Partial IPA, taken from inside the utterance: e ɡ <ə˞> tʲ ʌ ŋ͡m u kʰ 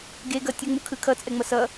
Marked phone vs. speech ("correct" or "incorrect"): incorrect